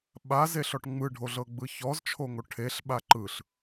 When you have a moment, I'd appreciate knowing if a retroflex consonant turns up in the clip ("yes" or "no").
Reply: yes